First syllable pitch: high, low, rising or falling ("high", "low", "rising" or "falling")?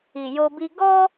low